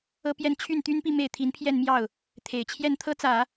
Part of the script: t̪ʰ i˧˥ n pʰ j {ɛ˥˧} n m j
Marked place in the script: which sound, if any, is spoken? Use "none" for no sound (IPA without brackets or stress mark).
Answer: ɛ˥˧